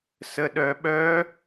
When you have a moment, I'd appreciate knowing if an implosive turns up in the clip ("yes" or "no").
yes